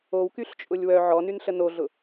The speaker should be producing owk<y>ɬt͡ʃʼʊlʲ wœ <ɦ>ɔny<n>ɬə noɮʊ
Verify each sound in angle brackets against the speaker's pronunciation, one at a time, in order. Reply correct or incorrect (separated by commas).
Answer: correct, incorrect, correct